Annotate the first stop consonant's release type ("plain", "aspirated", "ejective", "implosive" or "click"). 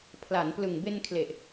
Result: aspirated